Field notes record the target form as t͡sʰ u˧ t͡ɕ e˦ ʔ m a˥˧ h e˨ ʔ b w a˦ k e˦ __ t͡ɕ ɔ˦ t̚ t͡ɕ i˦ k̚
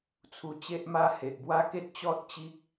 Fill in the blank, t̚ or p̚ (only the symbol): t̚